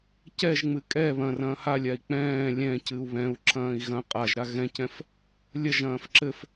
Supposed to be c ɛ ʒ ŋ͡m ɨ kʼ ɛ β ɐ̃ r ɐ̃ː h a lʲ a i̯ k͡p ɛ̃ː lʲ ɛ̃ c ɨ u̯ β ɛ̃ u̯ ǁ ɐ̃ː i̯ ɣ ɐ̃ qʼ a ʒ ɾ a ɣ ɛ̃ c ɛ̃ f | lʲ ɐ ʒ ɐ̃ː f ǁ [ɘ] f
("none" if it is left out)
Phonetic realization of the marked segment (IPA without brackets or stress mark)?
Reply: ɘ